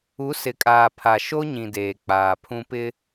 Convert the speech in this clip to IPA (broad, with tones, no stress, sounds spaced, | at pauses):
u˨˦ s ɪ˨ kʼ aː˨ pʰ a˨ ʃ o˦ ɲ ĩ˨ d eː˨ k͡p aː˨ pʰ ũ˦ p ɪ˦